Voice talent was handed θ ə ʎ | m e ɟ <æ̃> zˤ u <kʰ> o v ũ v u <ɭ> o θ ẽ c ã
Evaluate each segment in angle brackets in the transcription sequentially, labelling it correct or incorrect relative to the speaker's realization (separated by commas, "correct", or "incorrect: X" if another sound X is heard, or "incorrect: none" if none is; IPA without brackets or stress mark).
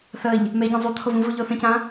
correct, incorrect: t̪ʰ, incorrect: ʎ